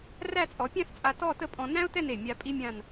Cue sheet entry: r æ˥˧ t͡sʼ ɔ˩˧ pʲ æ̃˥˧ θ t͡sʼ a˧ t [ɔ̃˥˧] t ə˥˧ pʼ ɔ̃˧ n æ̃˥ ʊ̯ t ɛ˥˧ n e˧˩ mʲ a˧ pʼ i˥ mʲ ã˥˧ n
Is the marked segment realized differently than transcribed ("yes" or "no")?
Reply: yes